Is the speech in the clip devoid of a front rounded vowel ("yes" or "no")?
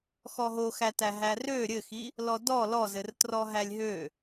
no